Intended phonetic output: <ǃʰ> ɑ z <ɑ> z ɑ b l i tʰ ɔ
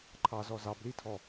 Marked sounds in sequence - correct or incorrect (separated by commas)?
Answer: correct, incorrect